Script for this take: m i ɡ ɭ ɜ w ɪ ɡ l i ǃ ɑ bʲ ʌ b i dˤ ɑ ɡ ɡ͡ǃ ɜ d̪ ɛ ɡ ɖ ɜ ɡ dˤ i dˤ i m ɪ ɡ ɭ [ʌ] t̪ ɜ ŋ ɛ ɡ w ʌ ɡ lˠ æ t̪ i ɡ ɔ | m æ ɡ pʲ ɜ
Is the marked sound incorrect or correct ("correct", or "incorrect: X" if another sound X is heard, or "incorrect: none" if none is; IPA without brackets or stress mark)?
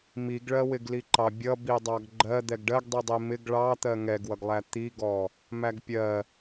incorrect: ɑ